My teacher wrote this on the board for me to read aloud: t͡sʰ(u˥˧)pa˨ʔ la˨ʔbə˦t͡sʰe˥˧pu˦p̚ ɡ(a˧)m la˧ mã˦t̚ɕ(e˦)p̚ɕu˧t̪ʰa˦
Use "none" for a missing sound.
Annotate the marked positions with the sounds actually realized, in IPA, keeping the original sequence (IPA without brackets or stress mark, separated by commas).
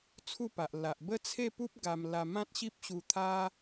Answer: u˥˧, a˧, i˦